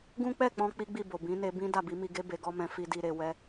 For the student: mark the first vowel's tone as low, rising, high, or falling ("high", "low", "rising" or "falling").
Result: high